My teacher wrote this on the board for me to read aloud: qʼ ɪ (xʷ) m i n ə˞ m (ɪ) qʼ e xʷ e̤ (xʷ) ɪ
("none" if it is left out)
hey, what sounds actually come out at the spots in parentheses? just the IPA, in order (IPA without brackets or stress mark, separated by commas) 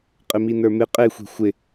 none, ɪ, xʷ